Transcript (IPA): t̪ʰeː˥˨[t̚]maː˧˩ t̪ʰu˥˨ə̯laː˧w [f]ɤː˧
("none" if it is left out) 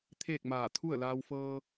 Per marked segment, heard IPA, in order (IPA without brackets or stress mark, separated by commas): k̚, f